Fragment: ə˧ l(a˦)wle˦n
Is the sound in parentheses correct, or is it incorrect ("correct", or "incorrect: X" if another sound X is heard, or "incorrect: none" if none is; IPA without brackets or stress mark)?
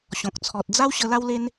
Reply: correct